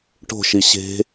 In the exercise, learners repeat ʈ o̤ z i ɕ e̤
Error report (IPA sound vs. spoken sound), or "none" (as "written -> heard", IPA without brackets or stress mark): z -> ʃ